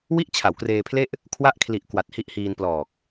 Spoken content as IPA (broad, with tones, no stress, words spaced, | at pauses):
wi˥˩ʔt͡ɕʰa˩˦wkreː˧pʰle˥˩ʔ | kʰwa˥˩ʔkʰli˨˩ʔ kwa˨˩t̚hi˦˥ʔhiː˧n plɔː˨˩k̚